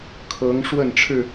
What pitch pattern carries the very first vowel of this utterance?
rising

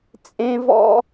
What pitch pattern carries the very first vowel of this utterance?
high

